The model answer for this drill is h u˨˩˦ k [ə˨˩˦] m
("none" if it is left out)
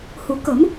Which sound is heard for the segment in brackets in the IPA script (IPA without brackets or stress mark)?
ə˨˩˦